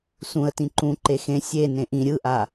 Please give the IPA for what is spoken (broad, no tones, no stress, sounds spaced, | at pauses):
s ũ ə̯ t ĩ ǃ ũ ǃ e x ẽ sʲ e n ẽ ʔ ĩ ɾʲ ɯ ʔ a